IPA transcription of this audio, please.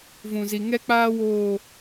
v ũ˨ z i˨ ŋ ɛ˦ k͡p aː˦ w oː˦˨

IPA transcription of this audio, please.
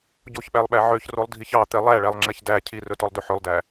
ɟ o ç ɓ æ lˠ ɓ æ ʕ ø ç r o lˠ dʱ i ç ɑ t̪ ɛ lˠ æ ɭ æ lˠ ŋ͡ǁ ɛ ç d æ cʰ i r ɵ t ɔ lˠ d ɵ ħ ɵ lˠ d æ

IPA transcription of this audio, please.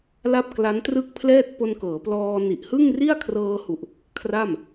l a˥˩ p̚ k l a˦˥ n t r ɯ˥˩ k̚ pʰ l ɛː˥˩ t̚ p o˧ n k ɤː˩˦ p l ɔː˧ n i˨˩ ʔ h ɯ˥˩ ŋ r i˥˩ a̯ kʰ r ɤː˧ h u˨˩ ʔ | kʰ r a˥˩ m

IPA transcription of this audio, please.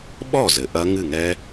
ɓ ɔ˥˩ z ɘ˩ ʔ ɐ˦˥ ŋ ɨ˥˩ ŋ ɛ˦˥

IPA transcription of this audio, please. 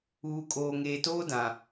uː˨ kʼ oː˨ ŋ eː˨ t oː˦ d ã˨

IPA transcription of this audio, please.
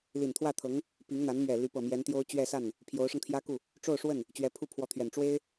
l i˨˩ n t̪ʰ w ä˥˩ t̪ʰ ɤ˧˥ ŋ | p i˧˥ ŋ n̪ a˧˥ n m ɥ ɛ˨˩ l y˧˥ p ɤ˨˩ m j ɛ˧˥ n t̪ j o˥ ʊ̯ t͡ɕ ɥ ɛ˥˧ s a˥˩ n | pʰ j o˧˥ ʊ̯ ʂ ɤ˧ ŋ t̪ʰ j ä˥ k u˥˩ | ʈ͡ʂ o˥˧ ʊ̯ ʂ w ə˥˩ n | t͡ɕ ɥ ɛ˧˥ pʰ u˥˩ pʰ w ɔ˧˥ t̪ʰ ɥ ɛ˨˩ n ʈ͡ʂ w e˥ ɪ̯

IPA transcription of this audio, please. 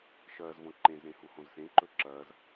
ʃ ɐː z v õ ǃ ẽ z ɾ ẽ h u h õ z s ẽ ǃ ɵ ǁ ɐː z

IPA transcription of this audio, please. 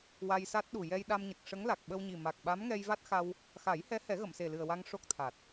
w a˧ j s a˦˥ t̚ ɗ u˨˩ j ɛ˧ j ɗ a˧ m ɲ ə˨˩ k̚ ʂ ə˧˥ ŋ l a˨˩ k̚ ɓ ə˧ w ɲ i˨˩ m a˨˩ k̚ ɓ a˧˥ m ŋ ɛ˧ j v a˦˥ t̚ x a˧ w | x a˨˩˦ j h ɛ˧˥ h ɛ˨˩˦ ɣ ə˨˩˨ m s e˨˩ l ɨ˨˩ ə̯ w a˧ ŋ ʂ o˦˥ k̚ t̪ʰ a˨˩ t̚

